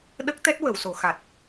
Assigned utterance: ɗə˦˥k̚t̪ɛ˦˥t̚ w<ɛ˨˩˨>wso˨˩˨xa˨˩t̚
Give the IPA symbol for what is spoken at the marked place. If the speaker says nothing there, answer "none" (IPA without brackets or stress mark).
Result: ə˨˩˨